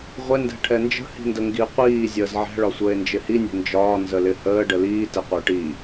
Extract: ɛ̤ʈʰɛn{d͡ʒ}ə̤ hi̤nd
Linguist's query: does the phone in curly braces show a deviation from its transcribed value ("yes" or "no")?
no